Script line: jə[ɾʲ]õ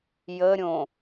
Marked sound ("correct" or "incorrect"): correct